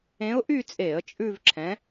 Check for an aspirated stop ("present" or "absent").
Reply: present